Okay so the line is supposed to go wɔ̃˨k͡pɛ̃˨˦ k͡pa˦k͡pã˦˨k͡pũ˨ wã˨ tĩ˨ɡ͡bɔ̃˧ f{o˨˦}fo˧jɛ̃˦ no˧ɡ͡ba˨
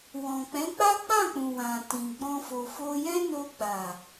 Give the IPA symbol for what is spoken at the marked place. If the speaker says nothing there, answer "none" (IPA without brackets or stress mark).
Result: o˨